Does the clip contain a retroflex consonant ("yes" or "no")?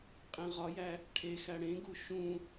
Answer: yes